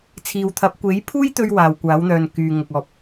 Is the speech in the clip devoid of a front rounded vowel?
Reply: no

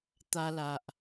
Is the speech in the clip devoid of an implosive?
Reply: yes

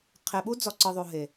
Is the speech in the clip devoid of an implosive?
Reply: no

